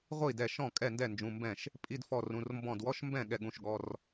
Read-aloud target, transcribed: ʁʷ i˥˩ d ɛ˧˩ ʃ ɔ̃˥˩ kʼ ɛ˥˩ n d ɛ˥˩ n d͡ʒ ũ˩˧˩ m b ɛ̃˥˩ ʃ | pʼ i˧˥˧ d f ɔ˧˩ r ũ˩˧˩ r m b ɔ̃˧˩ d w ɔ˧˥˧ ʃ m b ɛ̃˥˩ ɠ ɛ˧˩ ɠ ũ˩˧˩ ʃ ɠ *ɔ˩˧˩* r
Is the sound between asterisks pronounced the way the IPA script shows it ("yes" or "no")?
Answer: yes